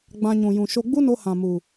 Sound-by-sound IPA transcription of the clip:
ɡ͡b ã˧ ɲ ũ˨ j ũ˨ ʃ o˧ ɡ͡b u˦ n o˧ h ã˨ m u˨

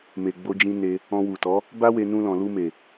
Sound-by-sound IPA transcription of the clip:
m e˨ ɡ͡b o˧ d͡ʒ ĩ˧ n e˧ | ɔ̃˧ w u˨ t ɔ˨˦ | b a˦ w e˧ n ũ˧ l ɔ̃˨ l u˧ m e˨

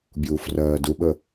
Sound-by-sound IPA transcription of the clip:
bʲ uː f r ɜː d u ɓ ə

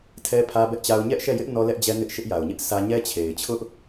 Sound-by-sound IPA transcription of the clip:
tʰ ɛ˦ pʰ ä˦ b ɛ˦ ʔ t͡ɕ a˦ ʊ̯ ɲ ɛ˦ ʔ ʃ ɛ˦˨ j ɪ˦ ʔ n ɔ˦ l ɛ˦ ʔ d͡ʑ ɛ˦ n ɪ˦ ʔ ʃ ɪ˦ ʔ j a˨ ʊ̯ ɲ ɪ˦ ʔ s ä˦ ɲ ɛ˦ t͡ɕʰ e˨ ɪ̯ t͡ɕʰ ʊ˦ ʔ

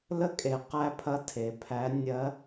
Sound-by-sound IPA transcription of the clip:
l ə˥ kʼ e˩˧ q æ˧ pʰ ɐ˧˥ tʰ e˩˧ pʰ æ˧˥ nʲ ɜ˧˥

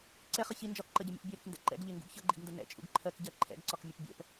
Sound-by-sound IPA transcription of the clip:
ǀ ɛ χ ʌ ç i n d͡ʒ ɒ k ǃ ɜ ɟ ʌ mʲ ṵ p bʲ ɛ ɾ ɪ k n d ɛ̰ ǃ ɛ̰ ɡ ʎ ɪ ŋ ɡ ṵ ɡ ç ʌ ɡ͡ǃ ḭ ɡ n d ə n ɛ̰ t͡ʃʼ ṵ ɡ ǃʰ ɜ k ɟ ɜ ǃʰ ɛ̰ ɡ ǀ ɒ k mʲ ʌ p bʲ ɛ̰ p

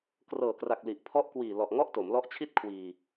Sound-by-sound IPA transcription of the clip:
k r ɤː˨˩ k r a˨˩ k̚ l i˨˩ ʔ pʰ ɔ˦˥ ʔ k w iː˨˩ l ɔ˨˩ ʔ ŋ ɔ˥˩ ʔ t o˩˦ m l ɔ˦˥ ʔ t͡ɕʰ i˥˩ t̚ kʰ w iː˧

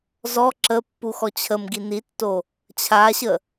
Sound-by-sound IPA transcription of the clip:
z ɔ ǁ ə pː u x ɔ t͡ɕʰ ə m ɡ i n i tː o | t͡ɕʰ a ɕ ə

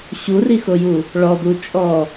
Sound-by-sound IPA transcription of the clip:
ɕ u r i x o j u | ɭ ɔ d̪ u t͡ʃʼ ɔ

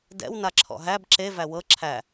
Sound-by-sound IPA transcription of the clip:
d ɛ̰ w n a ǁʰ ɔ̰ ɦ æ b ǁ e v æ w ɤ ǁʰ æ

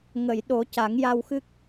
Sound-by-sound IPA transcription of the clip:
ŋ ə˨˩˨ j ɗ o˨˩˦ c a˨˩˦ ŋ j a˧ w x ɨ˦˥ k̚

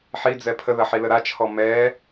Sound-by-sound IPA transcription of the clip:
ħ i d͡z ɛ pʰ ə ð ɐ ħ i l ə ɾ a t͡ʃʰ ɔ m ɛ

